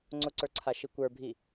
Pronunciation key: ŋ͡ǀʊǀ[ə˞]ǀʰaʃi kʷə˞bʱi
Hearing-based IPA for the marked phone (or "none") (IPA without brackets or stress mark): ə˞